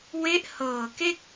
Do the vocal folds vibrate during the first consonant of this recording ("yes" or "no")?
yes